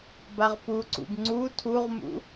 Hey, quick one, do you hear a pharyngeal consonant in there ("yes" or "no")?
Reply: no